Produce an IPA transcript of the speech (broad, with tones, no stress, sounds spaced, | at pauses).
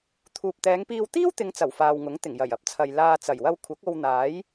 t̪ʰ uː˨ p̚ t̪ ɛː˨˧ ŋ p iː˧ w t̪ iː˥ w t̪ ɪ˨˧ ŋ t͡s ɐ˨˩ w f aː˨ w ŋ ʊ˨˥ ŋ t̪ ɪ˨˩ ŋ j ɐ˨˩ j ɐ˥ p̚ t͡sʰ ɐ˨ j l aː˧ t͡s ɐ˨˩ j w ɐ˧ w kʷʰ ɐ˨˥ k̚ o˧ w n̪ aː˨˥ j